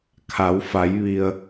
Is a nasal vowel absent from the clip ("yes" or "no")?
yes